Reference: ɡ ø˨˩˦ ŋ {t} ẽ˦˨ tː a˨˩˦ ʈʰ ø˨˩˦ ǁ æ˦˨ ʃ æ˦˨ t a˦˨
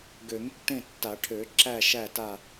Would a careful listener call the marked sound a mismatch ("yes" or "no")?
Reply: yes